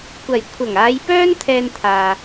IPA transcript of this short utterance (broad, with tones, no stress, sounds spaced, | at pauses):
kʷ ɐ˨˩ j kʷʰ ɐ˨˩ ŋ aː˨˧ j p œː˥ n t̪ʰ ɛː˧ n t̪ʰ aː˨